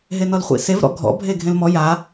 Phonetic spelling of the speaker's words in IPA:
ɦ e n ɔ l χʷ ḭ s e v ɾ ɔ̰ ɡʱ ɔ̰ bʱ e ɡʱ ẽ l m ɔ j a

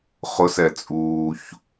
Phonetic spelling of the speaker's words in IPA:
χ ʊ s ɛ t͡sʼ uː ç

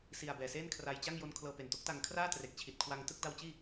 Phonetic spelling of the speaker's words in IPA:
s i˨˩ a̯ b ɛː˨˩ s eː˥˩ n kʰ r a˧ j t͡ɕ a˥˩ ŋ j o˦˥ n kʰ l ɤː˧ p e˨˩ n t o˦˥ k̚ t a˧ ŋ kʰ r aː˥˩ t r e˨˩ k̚ t͡ɕʰ i˨˩ t̚ kʰ w a˧ ŋ t ɯ˦˥ k̚ d a˧ w t͡ɕ iː˥˩

